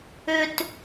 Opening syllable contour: high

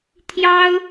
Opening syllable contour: high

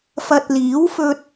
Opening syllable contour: low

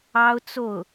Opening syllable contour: high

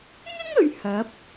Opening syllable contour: high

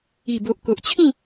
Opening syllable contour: low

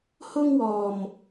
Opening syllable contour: high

